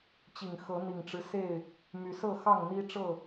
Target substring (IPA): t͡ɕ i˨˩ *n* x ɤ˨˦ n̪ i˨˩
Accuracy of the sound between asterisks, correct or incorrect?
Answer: incorrect